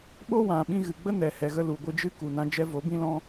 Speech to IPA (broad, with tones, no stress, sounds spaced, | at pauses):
ɓ o˦ w ã˨ ɓ ĩ˧ ɣ ɨ˨ ɡ͡b ə˦ n ɛ˨ h ɛ˨ ɣ ə˧ l u˨ ɡʷ ɨ˧ d͡ʒ ɨ˦ k u˨ n ã˧ d͡ʒ ɛ˧ v o˨˦ b ĩ˧ l ɔ̃˧